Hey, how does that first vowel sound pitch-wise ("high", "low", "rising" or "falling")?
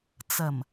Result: low